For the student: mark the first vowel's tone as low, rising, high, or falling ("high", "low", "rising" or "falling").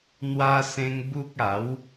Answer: high